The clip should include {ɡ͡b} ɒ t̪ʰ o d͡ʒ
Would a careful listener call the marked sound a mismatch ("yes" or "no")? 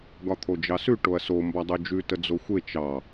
yes